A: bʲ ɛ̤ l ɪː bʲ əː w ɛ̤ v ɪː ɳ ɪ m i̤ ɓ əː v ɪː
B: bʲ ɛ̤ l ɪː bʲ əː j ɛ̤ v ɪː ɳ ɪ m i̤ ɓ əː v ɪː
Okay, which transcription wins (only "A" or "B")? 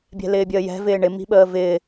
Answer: B